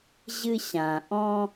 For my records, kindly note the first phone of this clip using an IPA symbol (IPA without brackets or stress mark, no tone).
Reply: ʑ